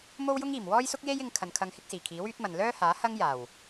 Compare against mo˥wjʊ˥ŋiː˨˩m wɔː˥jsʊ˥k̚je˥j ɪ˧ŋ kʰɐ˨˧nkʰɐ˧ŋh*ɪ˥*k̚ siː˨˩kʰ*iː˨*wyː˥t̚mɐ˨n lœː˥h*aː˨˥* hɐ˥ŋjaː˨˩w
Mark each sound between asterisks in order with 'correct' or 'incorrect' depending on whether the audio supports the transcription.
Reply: correct, incorrect, correct

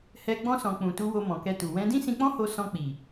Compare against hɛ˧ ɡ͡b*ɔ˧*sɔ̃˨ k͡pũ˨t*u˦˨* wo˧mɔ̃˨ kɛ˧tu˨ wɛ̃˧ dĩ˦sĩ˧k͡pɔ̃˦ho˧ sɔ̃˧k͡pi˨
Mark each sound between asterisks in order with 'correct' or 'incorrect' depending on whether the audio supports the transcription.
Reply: incorrect, incorrect

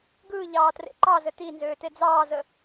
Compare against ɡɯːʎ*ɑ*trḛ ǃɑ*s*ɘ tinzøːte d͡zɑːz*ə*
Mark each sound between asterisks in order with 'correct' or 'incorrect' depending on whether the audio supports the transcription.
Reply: incorrect, incorrect, correct

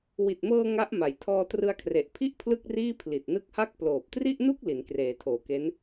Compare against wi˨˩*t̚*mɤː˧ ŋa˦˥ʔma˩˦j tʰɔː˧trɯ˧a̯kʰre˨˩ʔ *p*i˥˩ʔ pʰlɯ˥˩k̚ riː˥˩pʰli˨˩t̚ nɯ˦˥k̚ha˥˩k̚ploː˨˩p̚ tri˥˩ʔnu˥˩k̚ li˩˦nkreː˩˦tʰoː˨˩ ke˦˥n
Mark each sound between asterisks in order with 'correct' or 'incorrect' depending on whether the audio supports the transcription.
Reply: correct, incorrect

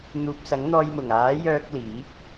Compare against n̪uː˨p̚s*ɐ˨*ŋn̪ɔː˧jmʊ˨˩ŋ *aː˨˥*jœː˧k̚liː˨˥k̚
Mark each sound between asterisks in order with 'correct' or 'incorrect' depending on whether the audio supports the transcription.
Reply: incorrect, correct

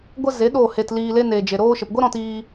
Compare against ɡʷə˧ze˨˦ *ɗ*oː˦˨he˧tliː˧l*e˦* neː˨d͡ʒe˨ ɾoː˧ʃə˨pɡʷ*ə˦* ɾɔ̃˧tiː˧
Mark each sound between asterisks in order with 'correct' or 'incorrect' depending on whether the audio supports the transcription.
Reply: correct, correct, correct

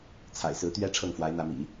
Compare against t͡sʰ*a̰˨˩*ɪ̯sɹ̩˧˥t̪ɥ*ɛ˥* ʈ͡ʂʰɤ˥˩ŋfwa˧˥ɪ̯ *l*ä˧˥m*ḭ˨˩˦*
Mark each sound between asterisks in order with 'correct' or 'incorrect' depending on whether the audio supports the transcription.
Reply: correct, correct, incorrect, correct

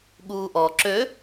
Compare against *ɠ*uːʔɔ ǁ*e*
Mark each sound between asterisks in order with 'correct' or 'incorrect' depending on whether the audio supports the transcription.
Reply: correct, incorrect

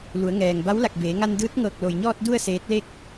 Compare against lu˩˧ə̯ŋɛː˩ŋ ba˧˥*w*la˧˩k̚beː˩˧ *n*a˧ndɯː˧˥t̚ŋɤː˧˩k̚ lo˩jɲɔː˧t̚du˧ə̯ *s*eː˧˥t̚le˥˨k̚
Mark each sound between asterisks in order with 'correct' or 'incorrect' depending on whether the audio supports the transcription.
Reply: correct, incorrect, correct

